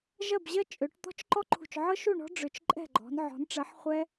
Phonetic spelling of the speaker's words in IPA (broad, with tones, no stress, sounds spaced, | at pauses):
ʒ ɜ˥˨ b ʑ ɜ˥ t͡ʃʼ ø˨˦ ʈ t̪ ɔ̤˥ t͡ʃ ǃ ɔ˥ ǃʰ ṳ˧˩ t͡ʃ ʕ ɤ˥ ʃ u˥˨ ɳ ɔ̤˥ ɖ͡ʐ ʏ˧˩ t͡ʃ ǃʼ ɛ̤˥˨ ɡ͡ǃ ɔ̤˨˦ n ʕ ɔ̤˨˦ n ʈ͡ʂ ɜ˨˦ ħ χʷ ɛ˥